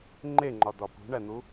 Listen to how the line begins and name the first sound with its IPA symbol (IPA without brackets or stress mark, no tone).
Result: ŋ͡ǃ